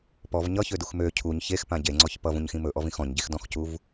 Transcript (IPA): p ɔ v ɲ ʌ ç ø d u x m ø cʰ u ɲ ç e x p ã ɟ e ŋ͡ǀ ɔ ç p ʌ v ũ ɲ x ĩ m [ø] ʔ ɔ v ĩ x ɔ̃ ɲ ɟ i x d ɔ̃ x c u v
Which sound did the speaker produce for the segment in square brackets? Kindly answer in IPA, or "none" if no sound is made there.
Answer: ɵ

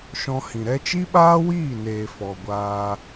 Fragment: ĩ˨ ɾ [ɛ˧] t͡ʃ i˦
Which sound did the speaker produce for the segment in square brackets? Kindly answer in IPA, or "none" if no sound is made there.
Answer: ɛ˧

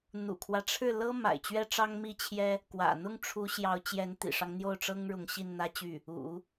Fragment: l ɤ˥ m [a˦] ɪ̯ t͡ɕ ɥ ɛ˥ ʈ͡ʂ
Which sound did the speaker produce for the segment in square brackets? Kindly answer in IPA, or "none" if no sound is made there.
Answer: a̰˨˩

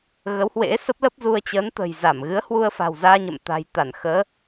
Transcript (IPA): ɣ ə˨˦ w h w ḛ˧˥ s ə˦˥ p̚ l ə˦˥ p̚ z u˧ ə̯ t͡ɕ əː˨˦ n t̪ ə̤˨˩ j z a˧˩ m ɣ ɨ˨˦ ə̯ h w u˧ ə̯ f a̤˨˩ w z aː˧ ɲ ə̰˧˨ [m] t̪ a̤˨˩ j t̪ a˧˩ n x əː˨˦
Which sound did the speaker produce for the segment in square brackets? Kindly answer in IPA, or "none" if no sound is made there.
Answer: m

